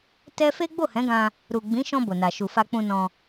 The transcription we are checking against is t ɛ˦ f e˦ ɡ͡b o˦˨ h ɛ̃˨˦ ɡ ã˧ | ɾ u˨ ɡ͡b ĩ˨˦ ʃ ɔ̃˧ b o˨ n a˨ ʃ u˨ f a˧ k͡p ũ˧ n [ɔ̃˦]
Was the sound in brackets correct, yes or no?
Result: no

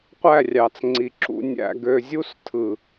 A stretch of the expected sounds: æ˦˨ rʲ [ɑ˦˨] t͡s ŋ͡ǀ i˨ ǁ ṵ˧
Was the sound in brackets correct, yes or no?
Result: no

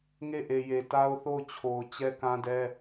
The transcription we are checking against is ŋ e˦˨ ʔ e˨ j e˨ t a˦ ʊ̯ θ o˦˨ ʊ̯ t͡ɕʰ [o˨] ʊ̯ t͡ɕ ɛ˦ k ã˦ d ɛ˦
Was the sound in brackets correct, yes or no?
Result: yes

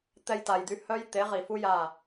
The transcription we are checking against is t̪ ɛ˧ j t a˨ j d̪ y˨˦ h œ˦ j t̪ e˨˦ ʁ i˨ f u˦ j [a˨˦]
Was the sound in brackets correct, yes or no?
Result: no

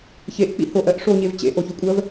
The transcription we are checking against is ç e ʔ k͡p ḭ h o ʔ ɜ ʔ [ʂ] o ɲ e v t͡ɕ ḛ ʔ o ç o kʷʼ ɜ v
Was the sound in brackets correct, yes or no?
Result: yes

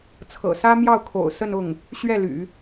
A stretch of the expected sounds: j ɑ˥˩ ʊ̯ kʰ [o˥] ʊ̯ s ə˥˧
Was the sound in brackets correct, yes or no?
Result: no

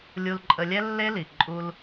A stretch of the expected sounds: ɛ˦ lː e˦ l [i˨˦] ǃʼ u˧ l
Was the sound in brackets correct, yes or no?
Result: no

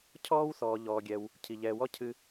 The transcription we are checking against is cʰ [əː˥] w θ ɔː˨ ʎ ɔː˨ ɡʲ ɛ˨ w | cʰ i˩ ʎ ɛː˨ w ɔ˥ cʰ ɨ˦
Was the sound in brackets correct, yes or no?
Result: no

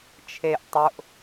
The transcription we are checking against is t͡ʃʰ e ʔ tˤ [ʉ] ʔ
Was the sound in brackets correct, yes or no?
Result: no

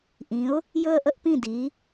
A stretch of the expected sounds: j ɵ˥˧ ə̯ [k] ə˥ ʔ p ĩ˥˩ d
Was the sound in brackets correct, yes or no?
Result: no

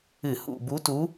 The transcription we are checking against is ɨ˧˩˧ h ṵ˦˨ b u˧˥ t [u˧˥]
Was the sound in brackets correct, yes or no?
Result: yes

